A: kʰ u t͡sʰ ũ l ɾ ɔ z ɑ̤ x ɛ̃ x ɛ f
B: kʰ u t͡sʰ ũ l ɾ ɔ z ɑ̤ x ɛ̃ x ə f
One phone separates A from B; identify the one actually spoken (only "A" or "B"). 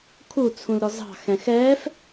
A